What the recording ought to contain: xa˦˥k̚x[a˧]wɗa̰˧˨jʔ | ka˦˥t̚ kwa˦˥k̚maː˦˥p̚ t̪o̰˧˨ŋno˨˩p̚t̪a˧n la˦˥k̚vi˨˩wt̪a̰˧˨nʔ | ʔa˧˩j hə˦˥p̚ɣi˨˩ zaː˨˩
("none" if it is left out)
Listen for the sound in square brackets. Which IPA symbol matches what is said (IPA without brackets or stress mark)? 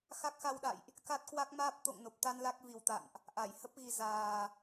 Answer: a˧